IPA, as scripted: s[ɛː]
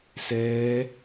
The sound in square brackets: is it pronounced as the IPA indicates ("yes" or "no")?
yes